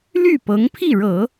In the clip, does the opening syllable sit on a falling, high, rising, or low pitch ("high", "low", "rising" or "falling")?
falling